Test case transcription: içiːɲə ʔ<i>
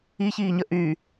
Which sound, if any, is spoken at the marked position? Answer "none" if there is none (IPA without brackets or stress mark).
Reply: y